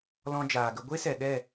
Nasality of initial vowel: nasal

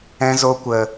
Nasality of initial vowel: nasal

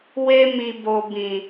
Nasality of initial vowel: oral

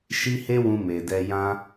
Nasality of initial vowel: oral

